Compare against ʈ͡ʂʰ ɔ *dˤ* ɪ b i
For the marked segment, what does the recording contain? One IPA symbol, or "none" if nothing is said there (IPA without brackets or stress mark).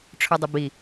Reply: dˤ